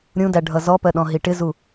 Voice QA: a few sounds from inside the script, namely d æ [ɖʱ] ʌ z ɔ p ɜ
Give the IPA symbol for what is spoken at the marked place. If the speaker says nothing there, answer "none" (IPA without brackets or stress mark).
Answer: ɖʱ